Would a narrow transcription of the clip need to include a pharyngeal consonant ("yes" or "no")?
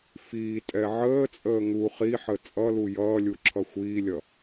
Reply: yes